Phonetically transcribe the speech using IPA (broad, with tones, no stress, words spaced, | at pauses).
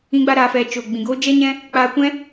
ĩ˦ɡ͡ba˦ɾaː˧fɛ˧ t͡ʃo˨ɡ͡bĩ˨ ɡoː˦d͡ʒɛ˦ɲɛ̃˦ | k͡paː˧kʷɛ̃˦